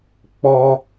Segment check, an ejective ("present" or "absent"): absent